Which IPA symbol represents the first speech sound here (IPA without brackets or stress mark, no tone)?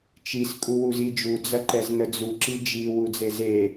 t͡ʃ